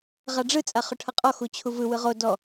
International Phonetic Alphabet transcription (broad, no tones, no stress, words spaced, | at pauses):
ʁaɖ͡ʐɯ t͡sʼaχʊʈʰʌqʼɔ xut͡ɕʰuvɯ wɯʁo dɔ